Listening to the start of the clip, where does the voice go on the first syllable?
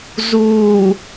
low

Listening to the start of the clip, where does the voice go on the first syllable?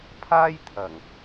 high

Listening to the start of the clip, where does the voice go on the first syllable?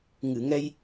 low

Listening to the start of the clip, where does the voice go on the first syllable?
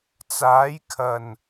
rising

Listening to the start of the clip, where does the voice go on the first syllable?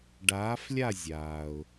rising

